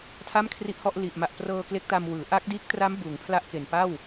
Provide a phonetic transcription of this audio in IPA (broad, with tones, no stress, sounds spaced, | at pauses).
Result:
tʰ a˥˩ m kʰ r i˦˥ ʔ h ɔ˥˩ ʔ l i˨˩ ʔ m a˨˩ ʔ p r ɤː˧ k l e˦˥ k̚ t a˧ m w ɯː˩˦ ʔ a˦˥ k̚ d iː˦˥ k̚ t r a˦˥ m b uː˩˦ ŋ pʰ l a˦˥ ʔ k e˨˩ n p a˥˩ w